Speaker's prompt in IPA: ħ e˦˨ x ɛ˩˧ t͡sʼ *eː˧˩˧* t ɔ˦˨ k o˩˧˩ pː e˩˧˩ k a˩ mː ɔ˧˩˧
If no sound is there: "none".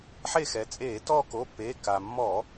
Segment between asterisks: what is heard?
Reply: eː˧˩˧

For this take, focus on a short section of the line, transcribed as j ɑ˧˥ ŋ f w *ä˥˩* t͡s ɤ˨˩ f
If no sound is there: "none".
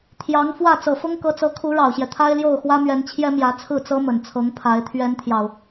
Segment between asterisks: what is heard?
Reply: ä˥˩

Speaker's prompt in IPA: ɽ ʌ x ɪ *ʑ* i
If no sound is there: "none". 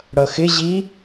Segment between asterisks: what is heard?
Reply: ʑ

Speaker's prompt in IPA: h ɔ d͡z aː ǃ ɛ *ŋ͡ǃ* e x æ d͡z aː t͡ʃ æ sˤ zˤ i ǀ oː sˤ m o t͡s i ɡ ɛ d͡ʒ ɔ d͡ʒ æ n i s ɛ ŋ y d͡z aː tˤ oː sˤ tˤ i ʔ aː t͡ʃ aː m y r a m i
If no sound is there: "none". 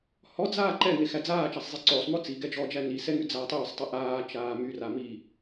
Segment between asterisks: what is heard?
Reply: ŋ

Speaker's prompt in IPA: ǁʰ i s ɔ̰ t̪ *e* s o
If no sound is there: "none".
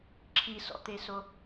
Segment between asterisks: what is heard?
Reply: e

